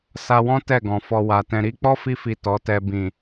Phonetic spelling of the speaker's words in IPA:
sa˧wɔ̃˦ tɛ˦˨ɡɔ̃˨ fɔ˧wa˨tɛ̃˧ ɾi˦ k͡pɔ˦fi˧fi˨ tɔ˨˦tɛ˧bĩ˨

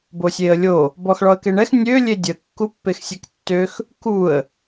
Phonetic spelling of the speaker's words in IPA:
bosʲeə̯lʲo | bɔxɭɔə̯keɳɛx nʲø lʲedʲə kːupːexsʲektːøx | kuə̯

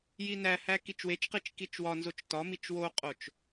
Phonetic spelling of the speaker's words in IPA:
jinæhæ kit͡ʃwet͡ʃqit͡ʃ kit͡ʃwɒnzot͡ʃ tɒmit͡ʃ woqʼot͡ʃ

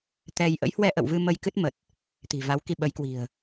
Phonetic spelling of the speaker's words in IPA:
t̪ɛ˧j ʔə̰˧˥jhwɛ˧ʔə̰˧˨wvɨ˧ mə˧j kɨ˦˥t̚mə˨˩t̚ | t̪i̤˨˩ va˨˦wki˧ɓə˨˦jkwi̤˨˩ə̯

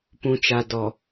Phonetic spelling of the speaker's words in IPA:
pũ˨t͡ʃa˨ dɔ˨

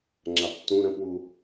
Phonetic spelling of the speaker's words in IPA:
ŋ͡ǁaptːũ ɾə̃pwu

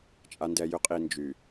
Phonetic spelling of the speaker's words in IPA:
t͡ʃʼa˨ndɛ˨jʏ˨˦qʼi˨ nd͡ʒy˨

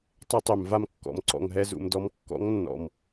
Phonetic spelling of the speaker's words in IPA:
tˤe˦tˤø˨mva˦mkːɔ̰˨m ǀɔ̰˨ŋɦɛ˧zṵ˨m dɔ˧m kːɔ̰˨˦ŋnːɔ̰˨m

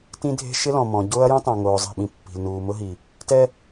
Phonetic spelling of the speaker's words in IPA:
tĩ˦dʱe̤˦ ʃɪ˦lɔ̃˨ mɔ̃˨˦ ɟʊː˦ɐ̯jũ˦tˤã˨ ŋoː˨zˤi̤˦˨ɓĩ˨ pːi̤˨lnuː˨mʊ˦ɦi˨ | tɛ˦

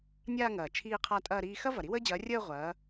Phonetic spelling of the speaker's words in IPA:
nʲaː˥˧ŋɐː˨˩ t͡ʃʰiː˥˧qʰa˥˧ tʼɐː˥˧ɾiː˥˧ xɐ˥ vɐ˨˩ɾi˥wəː˥d͡ʑɐː˨˥ rʲəː˥˧ ʁʷɐː˨˥

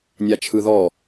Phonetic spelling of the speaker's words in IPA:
nʲat͡ʃʰɯðɔ

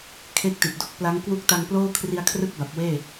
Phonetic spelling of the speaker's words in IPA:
kʰe˥˩k̚ti˨˩t̚ do˥˩k̚pla˦˥ŋkwu˥˩k̚ ta˧ŋploː˥˩kʰri˧a̯kʰrɯ˦˥k̚ ba˨˩p̚weː˥˩

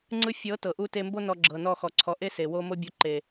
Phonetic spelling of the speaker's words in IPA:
ŋ͡ǀɯ˧fʲɤ˨˦ tɤ˨ʔu˦ te˧mbo˦ nɔ˧ɡ͡ǁɤ˨nɔ˦˨xɔ˨ ǀʰɔ˨ʔe˦ se˨wo˦ mo˦bʲo˧ ǃe˨

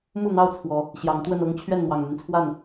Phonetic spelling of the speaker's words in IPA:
mu˥˨n̪ɑ˥˨ʊ̯ t͡sʰwɔ˨˦ | ɕjɑ˨˦ŋt̪wə˥˨nɤ˦ŋ t͡ɕʰɥɛ˥˨nn̪wɑ˨˩ŋn̪y˦nt͡sʰwa˥˨n

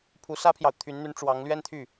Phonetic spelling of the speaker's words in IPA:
pʰu˧˥sä˥pʰjɑ˨ʊ̯ t̪ʰy˧˥nn̪y˧˥n ʈ͡ʂwɑ˧˥ŋlɥɛ˥nt̪ʰy˥˩

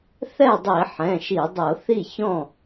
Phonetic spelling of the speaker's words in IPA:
θɛ˥˩dˤi˧˩˧ ħɛ̃˩˧˩ʃi˧˩˧dˤɤ˧˩˧ θi˥˩ çɔ̃˥˩

